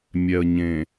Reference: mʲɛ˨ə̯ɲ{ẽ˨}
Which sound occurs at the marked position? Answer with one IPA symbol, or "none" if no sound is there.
ẽ˨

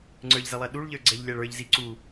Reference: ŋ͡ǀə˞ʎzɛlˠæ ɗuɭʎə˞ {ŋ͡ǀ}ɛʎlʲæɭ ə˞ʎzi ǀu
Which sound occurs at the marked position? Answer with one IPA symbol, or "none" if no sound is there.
ɡ͡ǀ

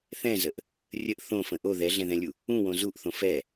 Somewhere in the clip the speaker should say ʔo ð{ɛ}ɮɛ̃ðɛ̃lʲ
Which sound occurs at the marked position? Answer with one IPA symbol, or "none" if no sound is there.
ɛ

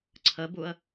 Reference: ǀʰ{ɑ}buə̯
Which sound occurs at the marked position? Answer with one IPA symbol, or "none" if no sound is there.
ə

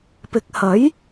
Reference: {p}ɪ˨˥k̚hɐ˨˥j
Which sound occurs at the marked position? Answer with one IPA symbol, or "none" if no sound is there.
p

